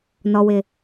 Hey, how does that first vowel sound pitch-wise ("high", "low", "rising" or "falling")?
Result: low